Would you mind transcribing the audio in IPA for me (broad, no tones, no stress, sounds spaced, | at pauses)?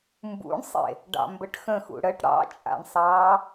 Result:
m b ṵ ɳ sˤ ḛ | ɖ ɑ̰ m b ə ʈ x ə̃ x ṵ ɽ ə ʈ ɽ ɑ̰ t͡ʃʼ a̰ ɳ sˤ ɑː